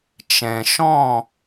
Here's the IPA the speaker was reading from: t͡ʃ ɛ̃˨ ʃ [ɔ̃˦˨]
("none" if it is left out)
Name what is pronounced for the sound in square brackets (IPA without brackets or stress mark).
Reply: ɔ̃˦˨